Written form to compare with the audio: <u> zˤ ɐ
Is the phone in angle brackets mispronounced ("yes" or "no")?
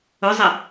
yes